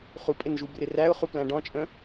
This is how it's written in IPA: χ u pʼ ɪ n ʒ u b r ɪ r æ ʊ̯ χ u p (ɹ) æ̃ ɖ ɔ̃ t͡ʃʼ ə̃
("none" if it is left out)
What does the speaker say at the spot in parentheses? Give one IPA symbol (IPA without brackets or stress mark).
l